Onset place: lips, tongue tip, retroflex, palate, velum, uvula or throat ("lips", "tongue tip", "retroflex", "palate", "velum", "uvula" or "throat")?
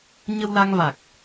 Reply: palate